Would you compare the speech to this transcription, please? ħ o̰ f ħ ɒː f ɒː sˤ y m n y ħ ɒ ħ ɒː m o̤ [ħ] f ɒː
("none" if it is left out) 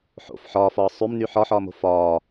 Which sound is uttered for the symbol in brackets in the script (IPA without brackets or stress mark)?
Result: none